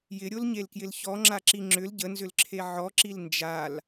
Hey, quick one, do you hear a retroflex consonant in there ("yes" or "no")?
no